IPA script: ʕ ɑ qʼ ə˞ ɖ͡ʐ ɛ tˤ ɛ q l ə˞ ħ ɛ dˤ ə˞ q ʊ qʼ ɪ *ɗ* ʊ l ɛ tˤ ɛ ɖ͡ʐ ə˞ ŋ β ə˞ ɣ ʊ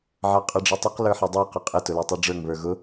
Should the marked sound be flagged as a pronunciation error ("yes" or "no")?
yes